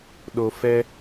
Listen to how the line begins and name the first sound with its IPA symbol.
ɗ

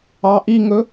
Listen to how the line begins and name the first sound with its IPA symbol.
ɑ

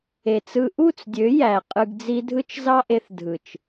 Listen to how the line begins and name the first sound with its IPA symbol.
e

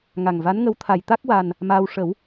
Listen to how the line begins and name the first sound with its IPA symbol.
ŋ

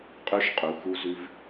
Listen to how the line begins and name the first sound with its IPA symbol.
qʼ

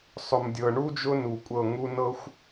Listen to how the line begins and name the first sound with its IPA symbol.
sˤ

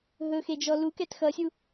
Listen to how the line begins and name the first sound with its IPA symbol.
ɦ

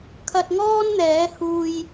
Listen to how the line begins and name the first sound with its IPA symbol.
kʰ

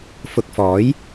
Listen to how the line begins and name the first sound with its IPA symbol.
f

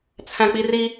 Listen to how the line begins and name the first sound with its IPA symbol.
t͡sʰ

